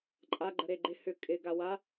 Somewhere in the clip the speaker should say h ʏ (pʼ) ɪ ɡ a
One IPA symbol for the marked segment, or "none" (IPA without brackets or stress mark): kʼ